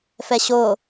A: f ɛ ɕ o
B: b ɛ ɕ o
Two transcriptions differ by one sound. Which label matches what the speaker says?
A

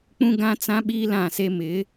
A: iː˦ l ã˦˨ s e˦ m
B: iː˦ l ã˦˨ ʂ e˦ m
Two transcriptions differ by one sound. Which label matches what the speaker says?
A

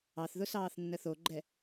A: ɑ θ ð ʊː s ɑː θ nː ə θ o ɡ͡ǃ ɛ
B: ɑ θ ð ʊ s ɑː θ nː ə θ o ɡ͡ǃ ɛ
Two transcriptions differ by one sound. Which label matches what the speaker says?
B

